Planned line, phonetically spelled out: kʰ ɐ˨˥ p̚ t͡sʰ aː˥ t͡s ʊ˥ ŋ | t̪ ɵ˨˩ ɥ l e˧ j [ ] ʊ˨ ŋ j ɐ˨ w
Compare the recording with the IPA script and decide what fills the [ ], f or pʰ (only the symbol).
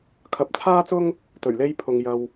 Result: pʰ